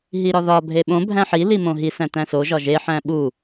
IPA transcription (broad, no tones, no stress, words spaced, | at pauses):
ɦiɾɒðɒ bʱeɓõ bʱæ̃ħi limõɦi sæ̃tæ̃so ʒɒʒe ħæ̃ɓu